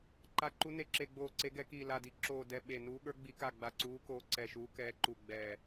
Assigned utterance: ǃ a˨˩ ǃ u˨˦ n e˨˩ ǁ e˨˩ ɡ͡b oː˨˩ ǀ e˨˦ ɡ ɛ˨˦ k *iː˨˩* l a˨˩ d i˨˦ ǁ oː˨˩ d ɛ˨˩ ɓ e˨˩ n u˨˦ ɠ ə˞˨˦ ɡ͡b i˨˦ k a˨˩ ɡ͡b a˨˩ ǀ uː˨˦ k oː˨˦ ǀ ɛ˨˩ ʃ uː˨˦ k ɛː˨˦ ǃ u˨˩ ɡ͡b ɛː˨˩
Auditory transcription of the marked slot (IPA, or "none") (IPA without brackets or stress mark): iː˨˩